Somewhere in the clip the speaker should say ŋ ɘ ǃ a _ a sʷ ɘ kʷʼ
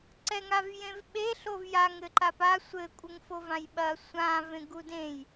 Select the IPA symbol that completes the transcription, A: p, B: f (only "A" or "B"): A